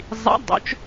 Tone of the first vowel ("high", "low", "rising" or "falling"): rising